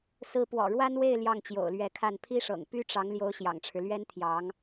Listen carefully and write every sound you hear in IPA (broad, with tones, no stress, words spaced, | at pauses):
sɹ̩˧˥pwɔ̰˨˩ɻwa˥nwe˥˧ɪ̯ ljɑ˥˩ŋt͡ɕjo̰˨˩ʊ̯lɥɛ˧˥kʰa˥˩n pʰi˥ʂɤ̰˨˩ŋ py˥ʈ͡ʂɑ˧˥ŋ ljo˧˥ʊ̯ ɕjɑ̰˨˩ŋʈ͡ʂʰɻ̩˦ lɥɛ˥nt̪ʰjɑ˧˥ŋ